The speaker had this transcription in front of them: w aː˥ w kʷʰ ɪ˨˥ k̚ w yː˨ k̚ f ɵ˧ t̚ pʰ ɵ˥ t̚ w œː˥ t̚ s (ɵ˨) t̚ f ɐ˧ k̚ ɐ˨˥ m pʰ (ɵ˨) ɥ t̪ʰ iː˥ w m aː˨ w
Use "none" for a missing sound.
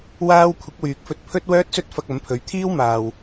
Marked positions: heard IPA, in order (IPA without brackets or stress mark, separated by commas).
ɵ˥, ɵ˨˧